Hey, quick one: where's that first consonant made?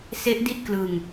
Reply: tongue tip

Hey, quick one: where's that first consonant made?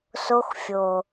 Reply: tongue tip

